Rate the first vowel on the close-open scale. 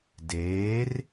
mid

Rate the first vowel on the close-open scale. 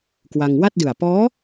open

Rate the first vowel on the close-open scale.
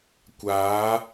open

